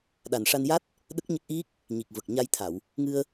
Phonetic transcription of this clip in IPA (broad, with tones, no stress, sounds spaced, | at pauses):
ɗ a˨˩ n ʂ a˧ n j a˦˥ t̚ | ɗ ə˦˥ k̚ ɲ ə˦˥ k̚ ʔ i˦˥ k̚ | ɲ i˨˩ k̚ v ə˨˩ k̚ ɲ a˧ j t̪ʰ a˨˩˨ w | ŋ ɨ˧ ə̯